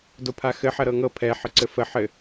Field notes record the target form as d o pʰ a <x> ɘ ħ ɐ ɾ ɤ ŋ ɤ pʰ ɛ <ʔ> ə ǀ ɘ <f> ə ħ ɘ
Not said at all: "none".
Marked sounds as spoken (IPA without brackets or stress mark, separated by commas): x, ħ, f